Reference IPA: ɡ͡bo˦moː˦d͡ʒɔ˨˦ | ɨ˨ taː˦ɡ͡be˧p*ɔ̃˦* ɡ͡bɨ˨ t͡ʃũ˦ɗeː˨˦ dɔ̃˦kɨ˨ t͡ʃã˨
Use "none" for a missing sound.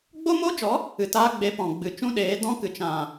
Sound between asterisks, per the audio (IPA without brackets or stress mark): ɔ̃˨